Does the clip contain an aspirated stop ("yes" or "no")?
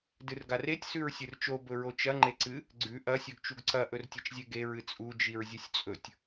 no